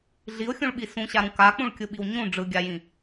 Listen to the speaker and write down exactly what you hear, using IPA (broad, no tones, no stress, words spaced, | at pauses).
ɮiʊ̯xʲũɭɓi sũɕaɾũ kak͡pũɭkʲɯɓiw ɲũ ɖ͡ʐɯɡʲajĩ